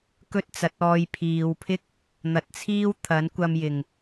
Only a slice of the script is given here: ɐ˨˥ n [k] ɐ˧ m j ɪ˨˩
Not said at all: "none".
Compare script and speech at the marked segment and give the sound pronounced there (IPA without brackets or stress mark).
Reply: kʷ